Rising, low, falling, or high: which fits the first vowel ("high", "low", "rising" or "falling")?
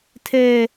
high